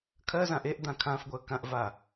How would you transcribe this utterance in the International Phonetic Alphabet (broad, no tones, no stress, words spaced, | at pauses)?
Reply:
kʰɜzãʔ eʔd̪ã kʰãfɡʷɜ kãʔva